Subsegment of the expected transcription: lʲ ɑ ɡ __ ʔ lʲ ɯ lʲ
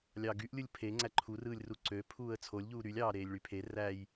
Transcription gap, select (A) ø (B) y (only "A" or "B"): B